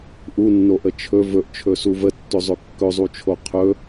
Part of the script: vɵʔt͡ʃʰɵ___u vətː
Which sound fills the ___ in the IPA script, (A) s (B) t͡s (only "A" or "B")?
A